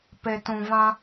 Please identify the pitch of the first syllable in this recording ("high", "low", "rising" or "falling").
low